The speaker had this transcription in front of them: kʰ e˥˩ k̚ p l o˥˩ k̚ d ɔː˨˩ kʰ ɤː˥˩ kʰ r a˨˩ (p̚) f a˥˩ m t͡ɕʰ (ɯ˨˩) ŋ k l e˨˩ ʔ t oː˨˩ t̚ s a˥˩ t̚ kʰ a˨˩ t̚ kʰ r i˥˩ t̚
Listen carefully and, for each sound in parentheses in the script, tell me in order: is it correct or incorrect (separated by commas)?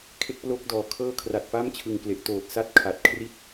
incorrect, correct